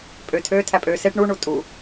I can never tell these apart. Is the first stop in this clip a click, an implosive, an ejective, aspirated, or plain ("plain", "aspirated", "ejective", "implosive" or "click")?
ejective